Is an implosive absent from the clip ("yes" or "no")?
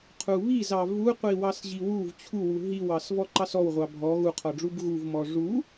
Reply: yes